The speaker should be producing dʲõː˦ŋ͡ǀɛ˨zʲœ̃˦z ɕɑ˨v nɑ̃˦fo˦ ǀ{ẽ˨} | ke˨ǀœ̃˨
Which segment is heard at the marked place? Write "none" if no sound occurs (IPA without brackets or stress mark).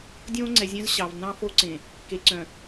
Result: ẽ˨